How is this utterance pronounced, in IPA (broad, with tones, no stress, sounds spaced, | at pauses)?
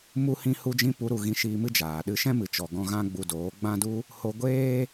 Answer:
m u˧ h ĩ˧ h u˧ d͡ʒ ĩ˧ p u˨˦ ɾ u˨ ɣ ĩ˧ ʃ iː˧ m ɨ˦ d͡ʒ aː˨ ɗ ɨ˧ ʃ ɛ̃˦ m ɨ˨ t͡ʃ ɔ˨ ɡ ɔ̃˧ ɣ ã˦ ɡ͡b u˧ d oː˨˦ ɡ͡b ã˦ d u˦ | h o˧ ɡʷ eː˦